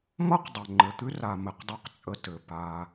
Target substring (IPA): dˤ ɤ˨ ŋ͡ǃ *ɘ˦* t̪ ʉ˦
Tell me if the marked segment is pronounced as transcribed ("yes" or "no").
no